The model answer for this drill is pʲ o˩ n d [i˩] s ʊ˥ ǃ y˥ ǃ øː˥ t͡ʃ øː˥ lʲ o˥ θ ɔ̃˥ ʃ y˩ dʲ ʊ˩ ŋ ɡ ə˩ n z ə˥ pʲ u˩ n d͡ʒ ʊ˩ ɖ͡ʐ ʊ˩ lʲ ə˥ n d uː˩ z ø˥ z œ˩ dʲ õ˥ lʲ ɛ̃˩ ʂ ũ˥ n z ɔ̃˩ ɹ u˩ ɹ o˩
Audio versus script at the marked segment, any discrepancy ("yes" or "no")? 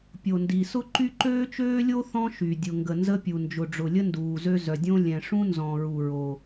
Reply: no